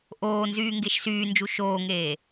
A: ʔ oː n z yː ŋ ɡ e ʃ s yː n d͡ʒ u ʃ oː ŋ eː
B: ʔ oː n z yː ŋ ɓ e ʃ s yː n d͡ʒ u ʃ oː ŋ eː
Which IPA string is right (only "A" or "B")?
A